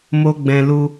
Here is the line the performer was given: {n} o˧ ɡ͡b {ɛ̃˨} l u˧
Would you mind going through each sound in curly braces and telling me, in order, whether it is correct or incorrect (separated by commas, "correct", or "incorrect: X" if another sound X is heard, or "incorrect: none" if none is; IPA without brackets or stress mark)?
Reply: incorrect: m, correct